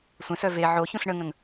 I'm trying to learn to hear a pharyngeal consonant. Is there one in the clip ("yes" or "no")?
yes